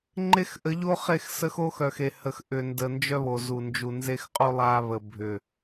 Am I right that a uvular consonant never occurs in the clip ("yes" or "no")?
no